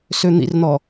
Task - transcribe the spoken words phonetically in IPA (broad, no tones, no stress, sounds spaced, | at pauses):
s ø n̪ ḭ r n̪ ɔ